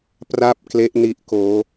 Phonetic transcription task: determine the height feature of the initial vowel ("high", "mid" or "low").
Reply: low